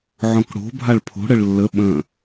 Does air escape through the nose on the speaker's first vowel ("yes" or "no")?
yes